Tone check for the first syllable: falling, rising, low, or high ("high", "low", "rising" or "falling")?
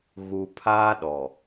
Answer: low